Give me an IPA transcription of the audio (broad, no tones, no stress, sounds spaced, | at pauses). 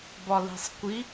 b ɒ l i̤ sˤ kʷ i